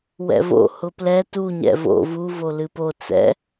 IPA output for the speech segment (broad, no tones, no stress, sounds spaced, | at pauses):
w ɛ̰ v o̰ h ʊ p l ɛ t u ɲ ɛ̰ v o̰ v u v o l ɨ p o t͡s ɛ̰